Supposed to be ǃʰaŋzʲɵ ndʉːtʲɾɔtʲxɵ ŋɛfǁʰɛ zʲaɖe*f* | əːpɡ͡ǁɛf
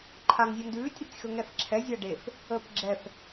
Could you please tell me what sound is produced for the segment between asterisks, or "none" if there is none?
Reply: f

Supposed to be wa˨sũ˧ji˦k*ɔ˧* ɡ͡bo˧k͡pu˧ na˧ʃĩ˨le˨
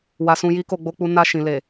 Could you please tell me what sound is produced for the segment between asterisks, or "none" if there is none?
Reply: o˧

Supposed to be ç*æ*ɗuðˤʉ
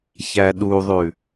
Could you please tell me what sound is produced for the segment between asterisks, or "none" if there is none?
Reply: æ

